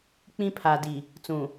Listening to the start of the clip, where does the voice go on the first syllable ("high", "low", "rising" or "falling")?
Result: high